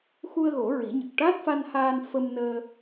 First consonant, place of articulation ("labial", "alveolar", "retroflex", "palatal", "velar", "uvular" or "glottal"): velar